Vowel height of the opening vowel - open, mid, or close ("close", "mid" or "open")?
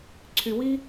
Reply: close